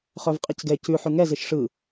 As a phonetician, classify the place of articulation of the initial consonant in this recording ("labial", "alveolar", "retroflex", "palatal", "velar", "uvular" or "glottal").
uvular